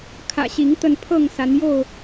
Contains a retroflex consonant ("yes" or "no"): no